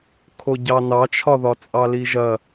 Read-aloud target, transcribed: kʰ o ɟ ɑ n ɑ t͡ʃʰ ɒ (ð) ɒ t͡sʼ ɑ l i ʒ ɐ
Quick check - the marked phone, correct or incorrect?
correct